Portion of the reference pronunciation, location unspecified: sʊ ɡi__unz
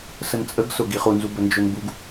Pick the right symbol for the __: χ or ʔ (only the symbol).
χ